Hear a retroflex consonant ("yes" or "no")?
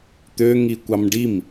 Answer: yes